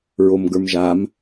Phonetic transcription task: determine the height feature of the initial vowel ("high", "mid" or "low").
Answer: mid